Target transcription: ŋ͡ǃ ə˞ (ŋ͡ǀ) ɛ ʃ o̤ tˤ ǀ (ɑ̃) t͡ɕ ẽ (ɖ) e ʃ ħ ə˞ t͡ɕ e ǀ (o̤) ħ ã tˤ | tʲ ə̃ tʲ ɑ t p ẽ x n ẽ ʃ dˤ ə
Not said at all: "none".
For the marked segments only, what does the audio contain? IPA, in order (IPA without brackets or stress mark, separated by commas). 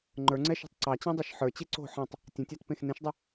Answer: ŋ͡ǀ, ɑ, dˤ, o̤